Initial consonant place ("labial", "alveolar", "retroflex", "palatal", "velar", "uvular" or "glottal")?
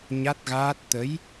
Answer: palatal